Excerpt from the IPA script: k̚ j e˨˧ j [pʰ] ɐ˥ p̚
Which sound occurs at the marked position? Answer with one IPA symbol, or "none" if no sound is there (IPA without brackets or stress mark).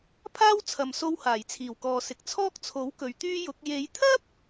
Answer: t̪ʰ